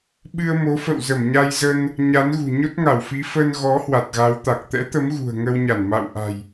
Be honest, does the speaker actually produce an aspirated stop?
no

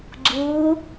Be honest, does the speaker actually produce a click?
yes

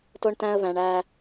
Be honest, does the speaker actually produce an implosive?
no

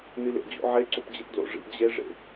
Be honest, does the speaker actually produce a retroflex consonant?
yes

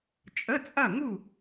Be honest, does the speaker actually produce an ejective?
yes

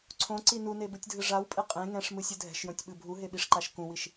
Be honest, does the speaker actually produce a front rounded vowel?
no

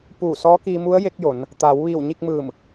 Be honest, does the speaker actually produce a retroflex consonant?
no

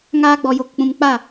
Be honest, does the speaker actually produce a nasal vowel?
yes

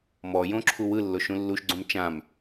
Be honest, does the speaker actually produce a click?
yes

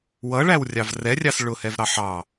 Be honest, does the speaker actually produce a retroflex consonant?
yes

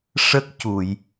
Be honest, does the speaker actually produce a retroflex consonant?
yes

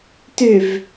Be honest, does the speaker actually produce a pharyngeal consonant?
no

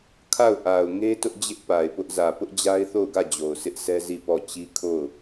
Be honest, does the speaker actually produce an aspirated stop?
yes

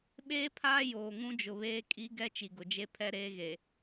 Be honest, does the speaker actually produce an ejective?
yes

